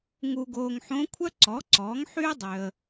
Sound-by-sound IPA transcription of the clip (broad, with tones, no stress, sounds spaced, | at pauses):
ŋ u˨ ɡ oː˨ ŋ ħ õ˧˥ kʷʰ œ˥ ǀ ɔ˩˥ ǀ ɔː˩˥ ŋ ħ yː˥ dˤ ø˨ ə̯